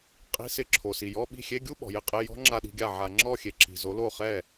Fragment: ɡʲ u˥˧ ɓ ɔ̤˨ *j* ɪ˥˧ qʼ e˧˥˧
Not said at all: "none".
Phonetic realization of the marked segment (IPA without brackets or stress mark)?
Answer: j